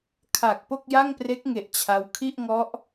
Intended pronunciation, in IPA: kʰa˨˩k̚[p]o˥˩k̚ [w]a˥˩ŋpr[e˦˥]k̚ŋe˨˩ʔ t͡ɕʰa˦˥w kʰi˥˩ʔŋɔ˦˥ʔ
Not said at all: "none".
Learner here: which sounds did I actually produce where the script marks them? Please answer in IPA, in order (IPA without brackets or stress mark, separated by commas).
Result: p, j, e˦˥